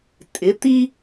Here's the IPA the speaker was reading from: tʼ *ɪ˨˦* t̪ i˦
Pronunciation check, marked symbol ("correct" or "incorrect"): correct